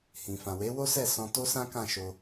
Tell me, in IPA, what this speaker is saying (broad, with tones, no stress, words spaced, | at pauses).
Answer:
hĩ˨fã˨ we˨˦ wo˦sɛ˦˨sɔ̃˧ to˦sã˦kã˦˨ʃo˧